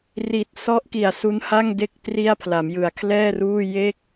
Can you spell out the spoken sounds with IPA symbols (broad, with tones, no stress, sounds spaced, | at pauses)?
r i˨˩ t̚ s ɔ˦˥ ʔ k i˨˩ a̯ s u˦˥ n h a˥˩ ŋ d e˥˩ k̚ t r i˥˩ a̯ pʰ l a˩˦ m j ɯ˨˩ a̯ kʰ l ɛː˥˩ r uː˥˩ j e˥˩ k̚